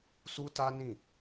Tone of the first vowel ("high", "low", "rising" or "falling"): high